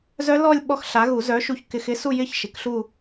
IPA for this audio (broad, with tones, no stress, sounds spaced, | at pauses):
z œ˦˥ l ɔ˥˧ lʲ ɓ ɔ˦˥ x ɬ a˨˥ ɣ u˨˩˦ z œ˨˥ ʃ u˧ ç k ɪ˧ x ɪ˦˥ s u˥˧ j ɪ˥˧ ç ʃ ɪ˨˥ k ɬ u˥˧